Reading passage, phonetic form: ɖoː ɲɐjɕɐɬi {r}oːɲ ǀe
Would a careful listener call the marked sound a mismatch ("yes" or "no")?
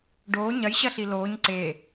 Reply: yes